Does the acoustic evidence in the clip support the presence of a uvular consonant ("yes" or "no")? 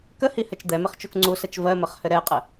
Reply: yes